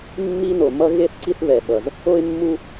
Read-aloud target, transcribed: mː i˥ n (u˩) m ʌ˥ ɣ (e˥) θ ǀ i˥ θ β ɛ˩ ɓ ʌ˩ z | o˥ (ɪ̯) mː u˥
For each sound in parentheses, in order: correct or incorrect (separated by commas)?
incorrect, correct, correct